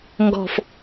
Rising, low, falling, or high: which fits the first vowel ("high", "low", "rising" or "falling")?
low